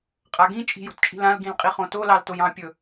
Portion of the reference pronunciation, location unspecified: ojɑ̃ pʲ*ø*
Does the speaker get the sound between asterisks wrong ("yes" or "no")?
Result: yes